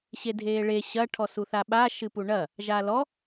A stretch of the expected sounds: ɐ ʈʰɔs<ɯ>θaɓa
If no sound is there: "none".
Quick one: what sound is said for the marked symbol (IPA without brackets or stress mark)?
u